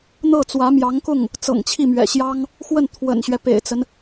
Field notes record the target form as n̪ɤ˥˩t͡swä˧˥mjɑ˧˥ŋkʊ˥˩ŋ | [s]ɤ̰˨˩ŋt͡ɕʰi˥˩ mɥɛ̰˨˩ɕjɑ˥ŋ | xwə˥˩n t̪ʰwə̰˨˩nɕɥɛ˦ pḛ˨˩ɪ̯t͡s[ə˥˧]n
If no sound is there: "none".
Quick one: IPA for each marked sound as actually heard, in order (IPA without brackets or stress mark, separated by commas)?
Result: t͡s, ə˦